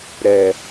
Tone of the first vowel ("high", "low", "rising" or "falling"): low